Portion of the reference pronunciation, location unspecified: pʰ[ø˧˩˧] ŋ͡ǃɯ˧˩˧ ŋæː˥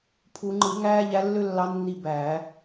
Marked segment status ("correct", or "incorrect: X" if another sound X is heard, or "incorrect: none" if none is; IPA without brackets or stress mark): incorrect: u˧˩˧